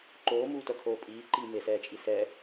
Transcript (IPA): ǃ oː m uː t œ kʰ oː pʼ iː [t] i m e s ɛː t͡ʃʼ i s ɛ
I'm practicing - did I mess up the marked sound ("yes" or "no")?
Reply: yes